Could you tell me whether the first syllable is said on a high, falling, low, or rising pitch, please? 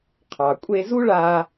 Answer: low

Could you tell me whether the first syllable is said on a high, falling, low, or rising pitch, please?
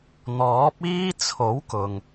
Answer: rising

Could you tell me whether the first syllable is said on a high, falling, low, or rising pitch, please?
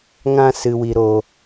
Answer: high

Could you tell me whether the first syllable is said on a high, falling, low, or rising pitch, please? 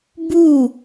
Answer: falling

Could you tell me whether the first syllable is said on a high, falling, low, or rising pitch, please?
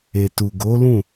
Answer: low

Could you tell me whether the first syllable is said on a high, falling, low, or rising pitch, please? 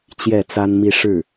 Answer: falling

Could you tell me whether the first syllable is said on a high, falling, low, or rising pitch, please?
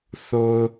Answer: low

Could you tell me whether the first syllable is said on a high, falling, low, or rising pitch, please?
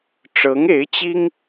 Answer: rising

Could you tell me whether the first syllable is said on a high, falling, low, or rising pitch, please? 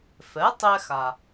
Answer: rising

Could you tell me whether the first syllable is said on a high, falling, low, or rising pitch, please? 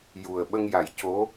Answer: low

